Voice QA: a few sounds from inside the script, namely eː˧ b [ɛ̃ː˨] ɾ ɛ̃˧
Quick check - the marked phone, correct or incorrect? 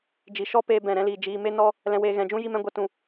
incorrect